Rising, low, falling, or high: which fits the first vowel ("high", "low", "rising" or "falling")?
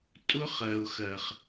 high